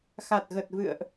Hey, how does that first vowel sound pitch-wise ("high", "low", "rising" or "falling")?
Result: low